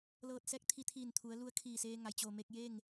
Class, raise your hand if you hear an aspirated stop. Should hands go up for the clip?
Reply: yes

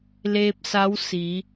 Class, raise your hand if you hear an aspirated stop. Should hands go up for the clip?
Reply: no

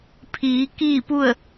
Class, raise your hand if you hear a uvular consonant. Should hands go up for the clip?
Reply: no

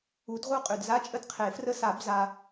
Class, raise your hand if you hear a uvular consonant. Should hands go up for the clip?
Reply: yes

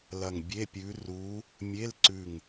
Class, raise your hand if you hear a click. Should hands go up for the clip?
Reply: yes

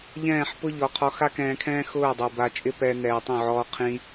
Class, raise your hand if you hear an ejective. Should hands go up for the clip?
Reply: yes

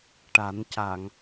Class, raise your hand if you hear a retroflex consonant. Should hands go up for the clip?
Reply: yes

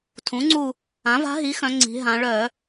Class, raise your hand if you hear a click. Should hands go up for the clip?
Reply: yes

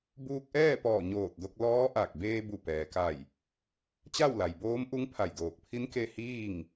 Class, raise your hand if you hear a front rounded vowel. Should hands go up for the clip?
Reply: no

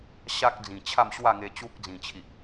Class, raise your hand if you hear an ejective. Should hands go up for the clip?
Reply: no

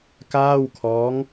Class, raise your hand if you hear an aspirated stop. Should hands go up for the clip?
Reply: yes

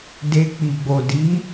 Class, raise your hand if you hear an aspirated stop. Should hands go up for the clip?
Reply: no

